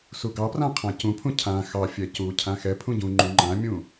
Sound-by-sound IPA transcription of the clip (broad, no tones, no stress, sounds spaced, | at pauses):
s u ɡ ɑ p r ã qʰ ã c ũ pʰ ũ cʰ ã x ɑ fʲ ɛ c u cʰ ã x ɛ pʰ ũ ɟ ũ ŋ͡ǃ ũ ŋ͡ǃ ã mʲ ũ